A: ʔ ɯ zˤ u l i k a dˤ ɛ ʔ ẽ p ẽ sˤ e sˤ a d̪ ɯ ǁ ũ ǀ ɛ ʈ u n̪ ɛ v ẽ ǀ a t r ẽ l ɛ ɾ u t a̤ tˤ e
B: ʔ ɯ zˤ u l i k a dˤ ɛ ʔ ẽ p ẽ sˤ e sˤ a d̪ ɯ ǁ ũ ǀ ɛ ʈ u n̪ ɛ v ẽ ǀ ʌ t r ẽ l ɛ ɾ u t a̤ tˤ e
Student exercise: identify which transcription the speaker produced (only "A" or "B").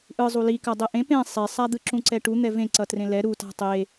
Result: B